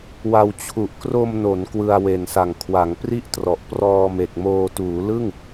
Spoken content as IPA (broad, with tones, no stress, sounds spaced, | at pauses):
w a˧ w t͡ɕʰ u˨˩ ʔ k r o˧ m n o˩˦ n k w ɯ˧ a̯ w e˨˩ n s a˨˩ ŋ kʰ w a˩˦ ŋ p r i˥˩ ʔ t r ɔ˨˩ ʔ p r ɔː˧ m e˨˩ k̚ m oː˧ t uː˩˦ l ɯ˥˩ ŋ